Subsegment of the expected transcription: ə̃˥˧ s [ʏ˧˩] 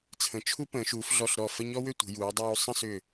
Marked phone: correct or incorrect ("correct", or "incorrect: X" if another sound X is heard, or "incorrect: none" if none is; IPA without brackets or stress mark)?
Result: correct